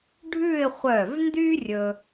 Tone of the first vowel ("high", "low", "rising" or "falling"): falling